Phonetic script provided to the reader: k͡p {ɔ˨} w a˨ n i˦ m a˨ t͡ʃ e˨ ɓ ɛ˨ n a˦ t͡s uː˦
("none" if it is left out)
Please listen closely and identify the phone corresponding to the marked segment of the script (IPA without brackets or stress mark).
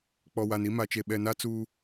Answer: ɔ˨